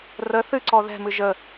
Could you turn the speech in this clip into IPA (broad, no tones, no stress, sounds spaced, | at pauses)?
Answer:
r ə θ ɨ ǀ ɔ ð ɛ̤ m ɨ ʒ ə